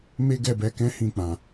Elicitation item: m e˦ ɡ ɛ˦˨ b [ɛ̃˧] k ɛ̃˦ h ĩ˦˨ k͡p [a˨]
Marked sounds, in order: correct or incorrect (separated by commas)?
incorrect, incorrect